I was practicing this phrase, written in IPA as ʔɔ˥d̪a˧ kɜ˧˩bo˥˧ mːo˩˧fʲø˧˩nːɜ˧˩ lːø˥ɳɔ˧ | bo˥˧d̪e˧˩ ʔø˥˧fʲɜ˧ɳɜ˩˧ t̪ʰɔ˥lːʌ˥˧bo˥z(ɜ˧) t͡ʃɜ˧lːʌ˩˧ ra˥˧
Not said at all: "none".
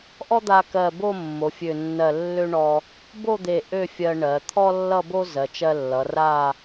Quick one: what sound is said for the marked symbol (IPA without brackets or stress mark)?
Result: ɜ˩˧